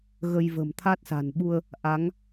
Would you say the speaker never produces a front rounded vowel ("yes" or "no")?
yes